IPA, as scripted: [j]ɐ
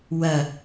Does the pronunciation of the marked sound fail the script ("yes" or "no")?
yes